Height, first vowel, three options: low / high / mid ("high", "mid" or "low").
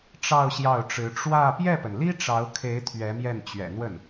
low